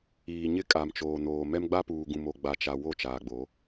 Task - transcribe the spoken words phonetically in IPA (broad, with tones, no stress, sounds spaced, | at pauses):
iː˨ ɲ ɪ˦ kʼ a˨ m t͡ʃ oː˨ n oː˨ m ɛ˦ m ɡ͡b a˦ p uː˨ ɡ ũ˨ m o˨ ɡ͡b a˨ t͡ʃ a˨ w o˦˨ t͡ʃ aː˨ ɡ͡b o˨˦